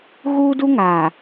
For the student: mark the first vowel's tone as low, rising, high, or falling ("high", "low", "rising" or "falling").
high